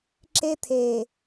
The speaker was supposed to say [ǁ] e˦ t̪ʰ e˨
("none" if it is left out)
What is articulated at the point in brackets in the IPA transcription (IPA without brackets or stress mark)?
ǁ